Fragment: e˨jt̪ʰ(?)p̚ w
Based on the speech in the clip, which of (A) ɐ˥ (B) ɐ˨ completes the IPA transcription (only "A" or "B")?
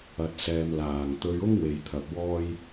B